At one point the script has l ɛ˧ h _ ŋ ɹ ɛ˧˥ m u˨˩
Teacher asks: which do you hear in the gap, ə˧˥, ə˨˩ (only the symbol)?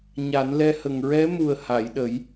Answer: ə˨˩